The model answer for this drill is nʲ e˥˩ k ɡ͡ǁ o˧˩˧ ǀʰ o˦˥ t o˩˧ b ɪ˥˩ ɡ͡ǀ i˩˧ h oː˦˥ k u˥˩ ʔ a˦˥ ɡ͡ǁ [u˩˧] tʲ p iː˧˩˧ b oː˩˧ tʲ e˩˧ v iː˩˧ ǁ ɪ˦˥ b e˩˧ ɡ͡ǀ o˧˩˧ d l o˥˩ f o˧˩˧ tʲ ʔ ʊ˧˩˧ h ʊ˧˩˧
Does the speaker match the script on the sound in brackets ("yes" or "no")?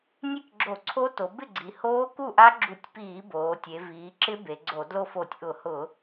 no